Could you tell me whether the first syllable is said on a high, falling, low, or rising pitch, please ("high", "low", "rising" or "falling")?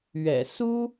low